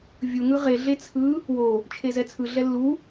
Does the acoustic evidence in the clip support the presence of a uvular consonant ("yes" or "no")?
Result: yes